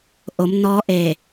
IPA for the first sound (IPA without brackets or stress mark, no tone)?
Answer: ʔ